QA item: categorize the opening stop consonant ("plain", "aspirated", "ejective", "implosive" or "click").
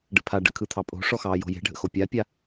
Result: plain